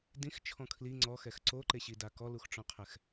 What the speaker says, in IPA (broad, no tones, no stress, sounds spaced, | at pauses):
d ĩ x t͡ʃʰ ɔ̃ kʰ l i ŋ͡ǀ ɔ x ɛ x ǀ o ǃ e ɕ i d a k ɔ l u x ʈ͡ʂ ɔ̃ qʰ ɛ x